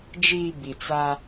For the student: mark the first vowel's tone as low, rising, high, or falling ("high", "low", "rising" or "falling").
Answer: low